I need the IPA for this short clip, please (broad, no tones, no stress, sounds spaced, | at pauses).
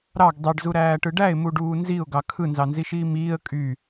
ɾ ɑ ɡ dˤ i ɖ z u ɾ æː ʈ ɯ ɖ æ ɪ̯ m u ɖ uː n z i ʊ̯ ɡ ɑ kʰ ɯ n z ɑ n z i ʃ iː m iː ə̯ kʼ y